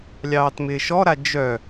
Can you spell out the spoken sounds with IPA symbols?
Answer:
lʲ ɑː t m ɪː ʃ ɔ ɾ a d͡ʒ œ

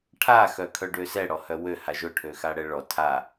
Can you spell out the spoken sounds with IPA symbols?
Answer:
ʈʰ a x œ kʰ œ ɖ ø s ɛ ɽ ɔ h œ w ø h a ʒ ʊ ʈʰ ø x a ɽ ɛ ɭ ɔ tʰ a

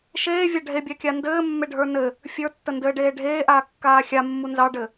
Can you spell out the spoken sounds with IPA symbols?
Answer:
ʃ eː vʲ a ɖʱ e bʲ a kʲ a n d ɘː mː e ɖʱ ə˞ n ɘ | fʲ ə˞ tː ə n d ɘː ɖ eː ɖʱ eː ʔ aː kː aː xʲ a mː u n z ɑ ɖ ɘ

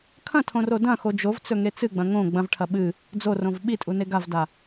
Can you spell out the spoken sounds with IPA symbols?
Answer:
kʰ ɐ̃ tʰ õ r o d ɐ̃ x o d͡ʒ o v t͡s ɵ ŋ e t͡s ɨ ɡ͡b ɐ̃ ŋ õ ɡ͡b ɐ̃ v ʈʰ ɐ ɓ ɨ | d͡z o r õ v ɓ i tʼ u n e ɡ a v d a

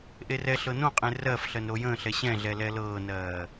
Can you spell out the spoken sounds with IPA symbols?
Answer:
ʔ e r ɛ ɬ ɤ n õ qʼ ẽ r ɜ f ɬ ɜ n ɾ o j ə̃ː ɬ ɛ ɕ ɛ̃ ɮ ɛ l ɛ l ɤː n ɜː

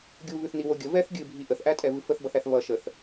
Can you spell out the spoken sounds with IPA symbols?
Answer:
ɡʲ u β ʉ θ n i w o ɡʲ ə v ɛ θ ɡʲ ɨ bʱ i ʔ ə θ ʔ æ tʼ ɛ v ɨ f ə θ b ʌ θ æ θ β ʌ ʃ ə θ

